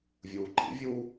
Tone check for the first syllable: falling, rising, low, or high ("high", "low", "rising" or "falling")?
low